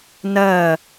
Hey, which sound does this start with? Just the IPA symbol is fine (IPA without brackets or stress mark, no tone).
n